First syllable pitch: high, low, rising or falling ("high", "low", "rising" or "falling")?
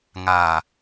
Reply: low